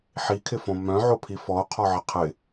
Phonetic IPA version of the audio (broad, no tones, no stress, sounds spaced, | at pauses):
ħ i kʰ ɪ f õ m œ̃ ʕ o pʰ i f ɔ o̯ qʰ ɔ ʕ ɪ qʰ ɪ